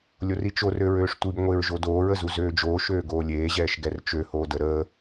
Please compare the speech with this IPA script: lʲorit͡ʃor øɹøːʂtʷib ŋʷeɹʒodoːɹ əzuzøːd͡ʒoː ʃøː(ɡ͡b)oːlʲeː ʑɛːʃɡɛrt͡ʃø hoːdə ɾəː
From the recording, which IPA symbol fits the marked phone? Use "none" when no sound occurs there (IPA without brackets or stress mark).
ɡ